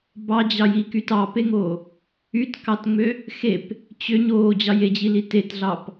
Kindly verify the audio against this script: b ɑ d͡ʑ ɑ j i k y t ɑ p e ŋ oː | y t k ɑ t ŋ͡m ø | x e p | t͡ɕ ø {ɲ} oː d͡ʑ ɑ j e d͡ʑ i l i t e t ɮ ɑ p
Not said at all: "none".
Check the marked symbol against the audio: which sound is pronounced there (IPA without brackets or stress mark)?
ɲ